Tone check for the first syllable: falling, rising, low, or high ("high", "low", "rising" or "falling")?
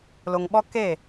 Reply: low